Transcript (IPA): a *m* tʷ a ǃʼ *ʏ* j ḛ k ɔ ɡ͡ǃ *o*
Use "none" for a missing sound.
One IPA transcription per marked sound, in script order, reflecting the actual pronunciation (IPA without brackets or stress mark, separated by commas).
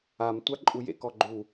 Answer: m, u, u